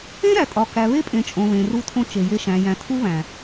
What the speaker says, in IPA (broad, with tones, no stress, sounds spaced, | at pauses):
ẽ˦ ɾ æ˨ tʼ ɒ˨ k æ˨ β e˦ pʼ ẽ˨ t͡ʃʼ õ˨ β ẽ˨ r u˦ tʰ õ˦ t͡ʃ e˨ j e˦ ʃ æ̃˨ j æ̃˨ tʰ u˦ β æ̃˨